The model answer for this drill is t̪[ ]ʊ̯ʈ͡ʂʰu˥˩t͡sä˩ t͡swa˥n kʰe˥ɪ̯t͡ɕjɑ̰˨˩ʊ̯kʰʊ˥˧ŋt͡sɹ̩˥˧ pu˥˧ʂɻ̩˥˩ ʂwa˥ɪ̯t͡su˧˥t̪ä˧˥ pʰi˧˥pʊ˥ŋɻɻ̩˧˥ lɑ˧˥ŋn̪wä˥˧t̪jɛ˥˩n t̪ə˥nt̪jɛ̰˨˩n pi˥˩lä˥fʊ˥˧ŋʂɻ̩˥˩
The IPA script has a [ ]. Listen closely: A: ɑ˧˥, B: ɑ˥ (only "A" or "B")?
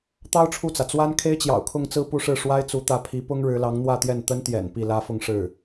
B